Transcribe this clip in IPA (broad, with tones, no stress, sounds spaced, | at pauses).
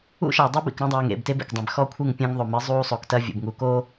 ṵ˦ ʃ a˨ dˤ ɛ˦ b ḭ˨ k ɾ ɐ̃˦ dˤ ɛː˨ ŋ ḛ˦˨ b t e˦ b ḛ˨ k dˤ ẽ˨ b x ɔ˦ kʷʰ ɨ˦˨ ŋ pʲ ɐ̃˦ ŋ ðˤ o˨ m ɨ˨˦ zˤ uː˦ sˤ o˨ k t ɐ˦ vʲ ṵ˨ b ŋ u˨ k o˦